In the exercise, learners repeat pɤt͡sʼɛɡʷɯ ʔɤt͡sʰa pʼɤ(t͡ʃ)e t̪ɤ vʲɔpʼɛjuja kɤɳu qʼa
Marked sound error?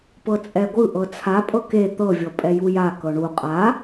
yes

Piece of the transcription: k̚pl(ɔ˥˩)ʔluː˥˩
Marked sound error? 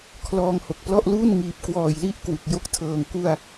no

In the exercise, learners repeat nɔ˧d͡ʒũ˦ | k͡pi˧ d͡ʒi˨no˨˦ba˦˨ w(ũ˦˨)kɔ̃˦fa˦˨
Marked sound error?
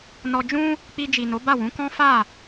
yes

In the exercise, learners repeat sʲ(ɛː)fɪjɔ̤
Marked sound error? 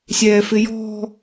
no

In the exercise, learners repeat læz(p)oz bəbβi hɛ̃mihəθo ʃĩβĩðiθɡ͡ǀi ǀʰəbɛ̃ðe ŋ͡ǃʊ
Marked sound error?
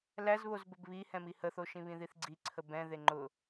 yes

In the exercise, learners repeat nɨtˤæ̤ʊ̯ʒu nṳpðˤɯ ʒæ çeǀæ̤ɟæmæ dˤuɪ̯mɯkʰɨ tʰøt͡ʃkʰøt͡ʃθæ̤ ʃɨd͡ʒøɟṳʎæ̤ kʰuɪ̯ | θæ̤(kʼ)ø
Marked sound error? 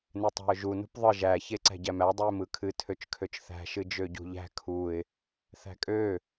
no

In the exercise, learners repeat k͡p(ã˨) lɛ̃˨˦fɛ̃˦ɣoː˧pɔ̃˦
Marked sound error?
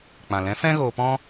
no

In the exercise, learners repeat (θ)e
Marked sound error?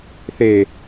no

